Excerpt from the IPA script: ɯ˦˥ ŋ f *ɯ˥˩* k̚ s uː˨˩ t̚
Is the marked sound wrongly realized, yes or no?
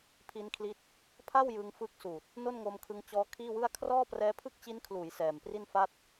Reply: yes